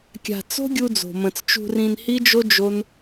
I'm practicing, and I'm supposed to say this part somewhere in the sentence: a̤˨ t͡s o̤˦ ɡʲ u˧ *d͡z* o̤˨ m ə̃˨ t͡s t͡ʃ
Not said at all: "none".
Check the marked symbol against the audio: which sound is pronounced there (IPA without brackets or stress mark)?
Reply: d͡z